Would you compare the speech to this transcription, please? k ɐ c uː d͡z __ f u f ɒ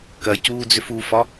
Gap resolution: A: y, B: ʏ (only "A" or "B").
B